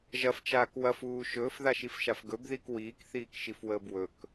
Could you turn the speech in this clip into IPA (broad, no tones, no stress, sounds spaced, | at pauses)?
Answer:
ʒ ɐ f t͡ʃ aː k w ɐ f uː ʃ ɵː f ð a ʃ i f ʃ a f ɡ ɵ b ð i k w iː k θ iː k ʃ i f w əː b w ɵ k